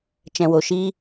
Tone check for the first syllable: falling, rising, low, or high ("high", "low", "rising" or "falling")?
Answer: low